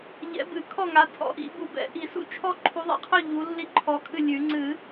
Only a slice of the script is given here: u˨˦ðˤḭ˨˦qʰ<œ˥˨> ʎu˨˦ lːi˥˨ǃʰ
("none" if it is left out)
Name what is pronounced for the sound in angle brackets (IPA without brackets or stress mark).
œ˥˨